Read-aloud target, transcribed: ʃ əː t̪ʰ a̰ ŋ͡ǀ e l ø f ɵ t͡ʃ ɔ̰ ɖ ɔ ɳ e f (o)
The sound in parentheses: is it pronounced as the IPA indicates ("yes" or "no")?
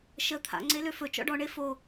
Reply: yes